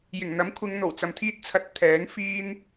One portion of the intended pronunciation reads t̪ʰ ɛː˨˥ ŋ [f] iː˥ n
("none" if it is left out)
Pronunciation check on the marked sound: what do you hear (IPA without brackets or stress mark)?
f